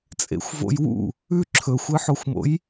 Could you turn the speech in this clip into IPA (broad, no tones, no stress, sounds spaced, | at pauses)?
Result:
t͡sʼ ḛ xʷ v o̰ j w ṵ | ʉ ǁʰ ɵ xʷ ɨ ħ o xʷ m o̰ j